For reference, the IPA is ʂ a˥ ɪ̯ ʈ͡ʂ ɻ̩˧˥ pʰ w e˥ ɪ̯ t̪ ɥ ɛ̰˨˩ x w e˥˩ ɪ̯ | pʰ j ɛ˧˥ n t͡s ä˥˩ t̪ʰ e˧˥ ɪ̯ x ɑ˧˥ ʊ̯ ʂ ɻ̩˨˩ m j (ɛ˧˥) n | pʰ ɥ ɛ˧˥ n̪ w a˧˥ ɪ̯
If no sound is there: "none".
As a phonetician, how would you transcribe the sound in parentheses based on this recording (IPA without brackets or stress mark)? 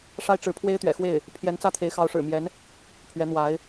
ɛ˧˥